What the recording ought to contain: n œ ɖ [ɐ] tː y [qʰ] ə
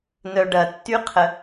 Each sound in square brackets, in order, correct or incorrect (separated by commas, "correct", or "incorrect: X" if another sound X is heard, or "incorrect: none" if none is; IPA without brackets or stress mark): correct, correct